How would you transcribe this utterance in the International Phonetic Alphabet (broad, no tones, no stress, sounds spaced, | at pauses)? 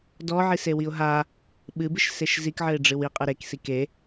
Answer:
d ɔ ʕ i s e w i ʊ̯ ɦ a | ɓ ɨ b ɨ ʃ s e ʃ z i k ʕ ɘ ɪ̯ ɖ͡ʐ ɨ w i qʼ ɨ ɾ e k s i k e